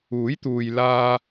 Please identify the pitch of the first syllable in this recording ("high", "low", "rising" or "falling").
rising